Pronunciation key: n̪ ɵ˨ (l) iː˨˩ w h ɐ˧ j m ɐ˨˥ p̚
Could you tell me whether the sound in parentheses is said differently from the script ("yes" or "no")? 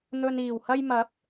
yes